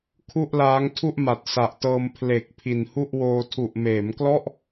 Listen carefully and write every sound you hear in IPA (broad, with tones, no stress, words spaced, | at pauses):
kʰu˥˩ʔlaː˦˥ŋtʰu˥˩ʔ ma˨˩t̚sa˨˩ʔtɤː˧m pʰle˨˩k̚ pʰi˨˩nhu˥˩ʔwoː˧ tʰu˨˩ʔmeː˩˦mklɔ˥˩ʔ